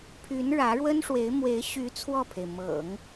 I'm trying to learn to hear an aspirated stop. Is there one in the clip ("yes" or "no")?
yes